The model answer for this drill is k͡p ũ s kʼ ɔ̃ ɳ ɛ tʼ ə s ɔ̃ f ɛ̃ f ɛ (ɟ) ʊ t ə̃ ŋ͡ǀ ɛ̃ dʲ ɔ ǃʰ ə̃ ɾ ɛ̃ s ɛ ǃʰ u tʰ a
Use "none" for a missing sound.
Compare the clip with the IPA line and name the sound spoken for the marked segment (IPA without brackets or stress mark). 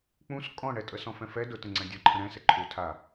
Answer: d